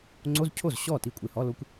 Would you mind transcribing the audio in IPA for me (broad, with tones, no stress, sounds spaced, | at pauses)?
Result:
ŋ͡ǀ o˧˥˧ z cʰ o˥˩ z ɕ ɔ˥˩ t i˥˩ kʷʼ e˧˩ h ɔ˧˥˧ l o˧˥ kʷ